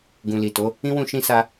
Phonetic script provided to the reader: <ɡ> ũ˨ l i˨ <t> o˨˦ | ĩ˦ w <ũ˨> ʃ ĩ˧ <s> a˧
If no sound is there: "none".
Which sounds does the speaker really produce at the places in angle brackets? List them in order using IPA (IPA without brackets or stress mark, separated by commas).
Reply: ɡ, t, ũ˦˨, s